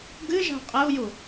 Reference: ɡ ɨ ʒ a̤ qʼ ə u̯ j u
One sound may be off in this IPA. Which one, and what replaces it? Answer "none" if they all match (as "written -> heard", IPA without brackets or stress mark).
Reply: none